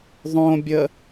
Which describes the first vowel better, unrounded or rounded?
rounded